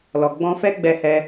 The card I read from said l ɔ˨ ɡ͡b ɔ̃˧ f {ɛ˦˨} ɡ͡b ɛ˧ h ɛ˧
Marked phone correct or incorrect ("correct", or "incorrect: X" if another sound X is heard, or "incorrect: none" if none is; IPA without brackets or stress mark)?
incorrect: ɛ˦